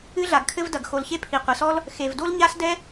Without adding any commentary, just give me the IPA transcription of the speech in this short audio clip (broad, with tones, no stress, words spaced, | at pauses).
ɨ˥ɮa˩ɡkʰɘ˥vdɐ˩ɡ xo˩lçe˥ pʰi˩qʷɘ˩sɔ˥l | xe˩vdo˥l ɲa˥sdɛ˥